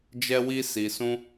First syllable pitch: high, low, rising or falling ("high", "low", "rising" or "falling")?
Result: high